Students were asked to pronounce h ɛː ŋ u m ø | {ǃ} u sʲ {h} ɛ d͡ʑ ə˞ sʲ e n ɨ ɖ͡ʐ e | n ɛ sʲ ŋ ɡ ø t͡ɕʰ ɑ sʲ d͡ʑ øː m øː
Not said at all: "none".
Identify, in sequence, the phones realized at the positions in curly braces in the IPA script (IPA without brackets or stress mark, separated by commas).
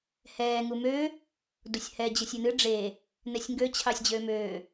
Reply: d, h